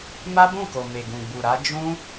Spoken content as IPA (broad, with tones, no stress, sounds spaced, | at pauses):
m a˦ b ũ˦˨ k o˨ m e˨ ɡ ũ˨ ɡ͡b u˨ ɾ a˧ d͡ʒ ũ˦